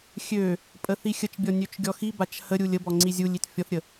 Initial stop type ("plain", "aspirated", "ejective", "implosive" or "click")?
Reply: ejective